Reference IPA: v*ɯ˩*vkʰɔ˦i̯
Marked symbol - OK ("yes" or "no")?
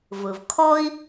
yes